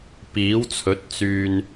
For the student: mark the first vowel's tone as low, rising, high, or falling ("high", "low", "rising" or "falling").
rising